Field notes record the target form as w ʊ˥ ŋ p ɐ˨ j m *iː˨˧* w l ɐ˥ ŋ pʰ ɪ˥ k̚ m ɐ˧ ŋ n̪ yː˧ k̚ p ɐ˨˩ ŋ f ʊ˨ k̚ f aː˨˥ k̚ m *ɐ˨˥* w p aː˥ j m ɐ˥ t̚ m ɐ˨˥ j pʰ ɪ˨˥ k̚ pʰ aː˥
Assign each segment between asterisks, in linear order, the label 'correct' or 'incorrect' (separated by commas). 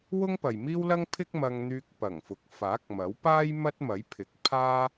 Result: incorrect, correct